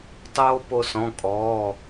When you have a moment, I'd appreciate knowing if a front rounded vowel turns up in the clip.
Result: no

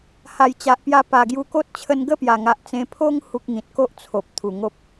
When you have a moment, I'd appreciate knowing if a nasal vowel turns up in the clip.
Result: yes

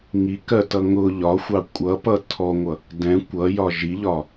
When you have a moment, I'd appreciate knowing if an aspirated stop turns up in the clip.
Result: yes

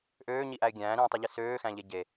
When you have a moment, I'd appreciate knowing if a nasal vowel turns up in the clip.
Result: yes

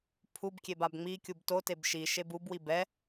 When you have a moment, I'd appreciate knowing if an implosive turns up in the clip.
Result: no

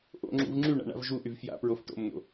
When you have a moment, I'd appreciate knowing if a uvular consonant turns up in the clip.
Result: no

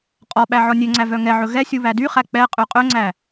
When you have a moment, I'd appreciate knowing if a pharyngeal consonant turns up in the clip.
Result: yes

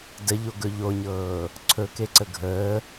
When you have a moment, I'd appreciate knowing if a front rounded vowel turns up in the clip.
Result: no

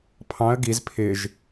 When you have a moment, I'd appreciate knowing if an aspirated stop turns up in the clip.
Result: yes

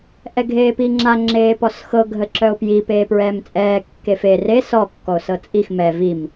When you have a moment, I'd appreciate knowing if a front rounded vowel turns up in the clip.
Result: yes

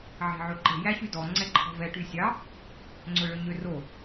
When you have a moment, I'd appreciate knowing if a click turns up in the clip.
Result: yes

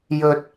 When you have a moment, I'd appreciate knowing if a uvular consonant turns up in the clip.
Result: no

